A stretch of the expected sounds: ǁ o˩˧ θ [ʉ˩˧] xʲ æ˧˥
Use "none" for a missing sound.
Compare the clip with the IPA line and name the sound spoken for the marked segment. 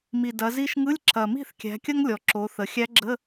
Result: ə˩˧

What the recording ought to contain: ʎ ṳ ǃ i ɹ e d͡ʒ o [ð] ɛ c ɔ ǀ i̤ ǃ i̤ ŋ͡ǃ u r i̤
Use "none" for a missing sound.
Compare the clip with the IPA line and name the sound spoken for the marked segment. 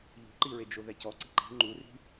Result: ð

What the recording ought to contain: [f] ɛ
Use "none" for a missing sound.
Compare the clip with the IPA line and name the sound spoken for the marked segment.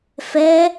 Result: f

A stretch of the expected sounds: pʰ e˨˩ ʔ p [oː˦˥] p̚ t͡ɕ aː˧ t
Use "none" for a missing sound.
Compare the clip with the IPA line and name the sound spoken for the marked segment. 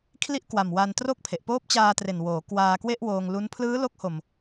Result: oː˦˥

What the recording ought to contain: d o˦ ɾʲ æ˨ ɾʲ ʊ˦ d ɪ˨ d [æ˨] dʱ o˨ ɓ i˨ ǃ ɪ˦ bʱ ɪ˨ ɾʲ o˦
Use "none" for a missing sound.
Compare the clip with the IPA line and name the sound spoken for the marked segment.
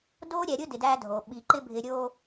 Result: æ˦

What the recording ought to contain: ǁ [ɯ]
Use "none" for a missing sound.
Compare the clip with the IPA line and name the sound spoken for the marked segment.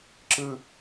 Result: ɯ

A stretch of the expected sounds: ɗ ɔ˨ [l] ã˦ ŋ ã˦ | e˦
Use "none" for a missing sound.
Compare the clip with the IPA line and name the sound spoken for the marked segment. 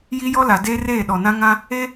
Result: n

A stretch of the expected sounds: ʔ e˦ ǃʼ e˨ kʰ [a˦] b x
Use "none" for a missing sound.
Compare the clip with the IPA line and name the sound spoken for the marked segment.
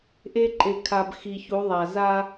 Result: a˨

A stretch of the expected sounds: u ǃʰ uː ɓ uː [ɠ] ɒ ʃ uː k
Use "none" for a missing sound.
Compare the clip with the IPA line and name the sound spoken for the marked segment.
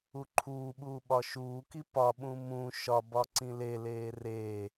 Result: ɓ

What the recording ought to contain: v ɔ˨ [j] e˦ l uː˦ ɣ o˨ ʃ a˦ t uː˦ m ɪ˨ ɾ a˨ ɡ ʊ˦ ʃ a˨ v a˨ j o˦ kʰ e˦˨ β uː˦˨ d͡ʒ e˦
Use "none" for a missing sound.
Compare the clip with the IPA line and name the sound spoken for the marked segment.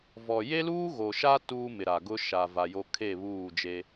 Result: j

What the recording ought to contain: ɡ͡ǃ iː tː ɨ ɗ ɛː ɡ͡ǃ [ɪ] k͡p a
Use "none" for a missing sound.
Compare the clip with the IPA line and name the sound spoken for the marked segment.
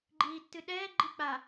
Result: i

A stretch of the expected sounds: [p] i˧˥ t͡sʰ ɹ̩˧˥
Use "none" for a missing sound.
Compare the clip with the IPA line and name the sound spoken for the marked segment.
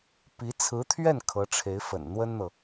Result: p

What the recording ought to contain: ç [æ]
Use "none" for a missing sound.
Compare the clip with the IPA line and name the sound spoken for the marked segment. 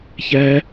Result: æ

